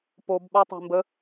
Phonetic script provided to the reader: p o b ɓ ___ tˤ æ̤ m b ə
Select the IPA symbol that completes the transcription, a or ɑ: a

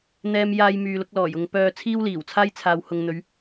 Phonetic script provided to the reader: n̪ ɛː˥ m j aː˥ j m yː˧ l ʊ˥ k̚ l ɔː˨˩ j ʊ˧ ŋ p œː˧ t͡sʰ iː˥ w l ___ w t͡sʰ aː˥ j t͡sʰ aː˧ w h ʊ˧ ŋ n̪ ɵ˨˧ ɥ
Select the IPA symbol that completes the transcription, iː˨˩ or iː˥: iː˨˩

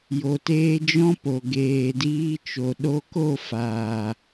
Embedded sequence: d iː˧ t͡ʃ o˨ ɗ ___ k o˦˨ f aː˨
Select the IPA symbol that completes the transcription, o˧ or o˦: o˧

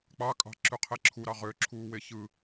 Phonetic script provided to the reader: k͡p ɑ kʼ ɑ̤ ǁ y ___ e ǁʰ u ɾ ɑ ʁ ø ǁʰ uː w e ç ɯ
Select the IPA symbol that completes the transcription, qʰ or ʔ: qʰ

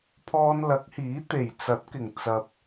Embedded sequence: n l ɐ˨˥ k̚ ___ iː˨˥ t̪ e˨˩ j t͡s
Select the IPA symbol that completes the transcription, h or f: h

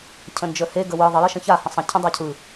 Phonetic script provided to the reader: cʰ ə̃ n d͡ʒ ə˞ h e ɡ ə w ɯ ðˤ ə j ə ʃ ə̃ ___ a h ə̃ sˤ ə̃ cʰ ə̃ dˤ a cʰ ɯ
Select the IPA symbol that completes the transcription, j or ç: ç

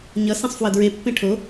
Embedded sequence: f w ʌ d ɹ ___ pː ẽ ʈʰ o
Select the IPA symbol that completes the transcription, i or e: e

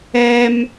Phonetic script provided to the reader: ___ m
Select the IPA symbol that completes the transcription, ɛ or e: ɛ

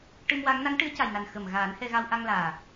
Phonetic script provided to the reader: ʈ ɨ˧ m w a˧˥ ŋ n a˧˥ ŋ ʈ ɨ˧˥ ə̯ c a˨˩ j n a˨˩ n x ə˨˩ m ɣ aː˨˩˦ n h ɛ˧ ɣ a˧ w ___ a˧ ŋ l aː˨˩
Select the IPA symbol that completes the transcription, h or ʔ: ʔ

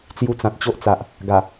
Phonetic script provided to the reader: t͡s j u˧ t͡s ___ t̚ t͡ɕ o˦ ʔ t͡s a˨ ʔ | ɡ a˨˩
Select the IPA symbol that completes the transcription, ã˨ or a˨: ã˨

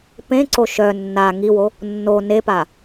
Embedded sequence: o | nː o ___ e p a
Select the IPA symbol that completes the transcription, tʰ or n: n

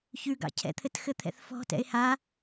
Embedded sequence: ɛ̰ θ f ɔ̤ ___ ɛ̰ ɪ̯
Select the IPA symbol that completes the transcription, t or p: t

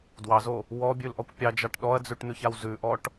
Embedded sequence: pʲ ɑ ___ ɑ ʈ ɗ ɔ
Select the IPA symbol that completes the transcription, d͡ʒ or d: d͡ʒ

